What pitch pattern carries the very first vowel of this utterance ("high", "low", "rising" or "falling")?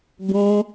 high